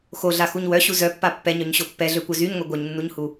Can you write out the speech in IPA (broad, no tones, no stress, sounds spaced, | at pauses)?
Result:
x o ɮ a x u ɲ w œ ɕ u z œ pː a pː ɛ ɲ œ ɲ ɕ o pː ɛ ɮ ø kʷ œ z y ɲ ŋʷ ɛ ɡʷ œ ɲ nː u ɲ h u